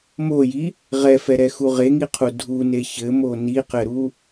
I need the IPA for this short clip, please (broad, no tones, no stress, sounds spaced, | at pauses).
m o j i | ʁ ɛ f ɛ ɾ ɛ x u ʁ e ŋ i qʰ u dʱ u n e ç ɘ m o n i q ɘ ɾ u